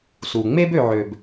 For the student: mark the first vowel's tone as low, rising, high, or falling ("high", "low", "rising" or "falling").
low